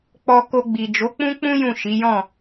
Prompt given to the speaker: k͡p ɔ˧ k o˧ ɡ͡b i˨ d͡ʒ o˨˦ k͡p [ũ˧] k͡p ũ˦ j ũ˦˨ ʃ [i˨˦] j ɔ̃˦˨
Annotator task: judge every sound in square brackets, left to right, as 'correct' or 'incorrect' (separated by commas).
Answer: incorrect, correct